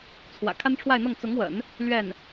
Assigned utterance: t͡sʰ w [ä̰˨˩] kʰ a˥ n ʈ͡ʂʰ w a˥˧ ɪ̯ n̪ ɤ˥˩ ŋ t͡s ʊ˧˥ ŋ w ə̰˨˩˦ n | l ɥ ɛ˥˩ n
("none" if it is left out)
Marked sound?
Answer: ä̰˨˩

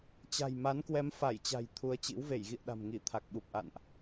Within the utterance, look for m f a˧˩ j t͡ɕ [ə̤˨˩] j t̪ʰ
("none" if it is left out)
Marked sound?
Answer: a̤˨˩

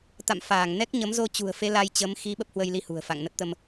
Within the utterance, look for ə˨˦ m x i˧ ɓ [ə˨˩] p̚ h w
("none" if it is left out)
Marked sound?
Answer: ə˦˥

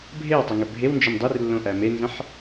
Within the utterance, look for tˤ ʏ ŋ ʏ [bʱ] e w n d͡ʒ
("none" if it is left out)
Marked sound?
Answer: bʱ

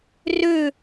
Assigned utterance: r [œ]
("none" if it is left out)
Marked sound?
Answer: ø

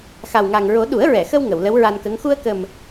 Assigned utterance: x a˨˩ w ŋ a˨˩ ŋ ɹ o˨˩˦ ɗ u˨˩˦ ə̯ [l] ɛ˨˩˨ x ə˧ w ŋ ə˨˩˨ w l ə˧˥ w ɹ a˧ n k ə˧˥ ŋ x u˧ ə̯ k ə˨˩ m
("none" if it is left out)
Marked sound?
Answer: ɹ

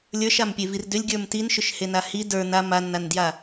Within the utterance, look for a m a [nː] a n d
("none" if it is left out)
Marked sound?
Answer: nː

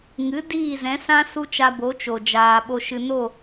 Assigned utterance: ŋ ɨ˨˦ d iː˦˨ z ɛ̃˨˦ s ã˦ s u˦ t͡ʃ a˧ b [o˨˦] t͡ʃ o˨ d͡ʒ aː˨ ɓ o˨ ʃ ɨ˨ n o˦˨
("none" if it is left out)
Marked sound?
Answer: o˨˦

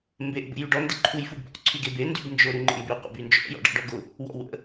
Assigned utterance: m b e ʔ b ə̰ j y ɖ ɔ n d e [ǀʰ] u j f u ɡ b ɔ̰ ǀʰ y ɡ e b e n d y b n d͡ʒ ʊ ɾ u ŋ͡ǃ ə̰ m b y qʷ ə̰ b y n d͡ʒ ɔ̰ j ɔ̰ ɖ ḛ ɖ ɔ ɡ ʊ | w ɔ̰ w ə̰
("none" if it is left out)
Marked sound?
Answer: ǃʰ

